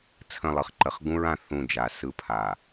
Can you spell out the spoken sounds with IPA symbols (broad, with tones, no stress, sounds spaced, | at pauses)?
t͡sʰ ə̃˦˨ lˠ ɯ˨ χ ǃ ə˨˦ χ ɡ ũ˦ ɹ ã˨ θ ũ˦˨ d͡ʒ a˨ s ɯ˦ pʰ a˨